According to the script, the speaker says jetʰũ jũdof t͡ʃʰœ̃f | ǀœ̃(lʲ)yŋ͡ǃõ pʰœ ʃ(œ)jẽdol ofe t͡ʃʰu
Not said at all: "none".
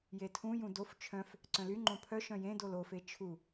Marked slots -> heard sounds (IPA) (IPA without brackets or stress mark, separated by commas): l, œ̃